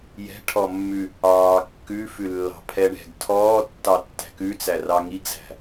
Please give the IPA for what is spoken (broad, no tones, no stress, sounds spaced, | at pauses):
j ɛ̤ ʈʰ ɔ mː ʉ | ɑː kː ʉ f ʉ lː ɑ̤ pʰ ɛ ɳ ɛ̤ ɡ tʰ ɔː tː ɑ tː æ̤ k ʉ t͡s æ r ɑ ŋ i ɡ z æ̤